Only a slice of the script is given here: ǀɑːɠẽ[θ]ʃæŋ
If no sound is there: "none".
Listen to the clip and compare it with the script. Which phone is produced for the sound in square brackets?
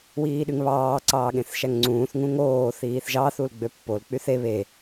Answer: θ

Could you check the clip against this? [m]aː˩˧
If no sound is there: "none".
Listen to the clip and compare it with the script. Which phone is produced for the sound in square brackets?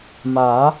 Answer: m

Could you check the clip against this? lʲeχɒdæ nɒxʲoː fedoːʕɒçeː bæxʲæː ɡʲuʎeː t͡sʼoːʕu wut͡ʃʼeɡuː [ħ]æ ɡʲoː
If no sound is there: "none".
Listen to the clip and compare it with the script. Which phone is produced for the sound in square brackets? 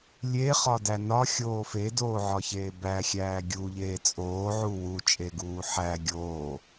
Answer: ħ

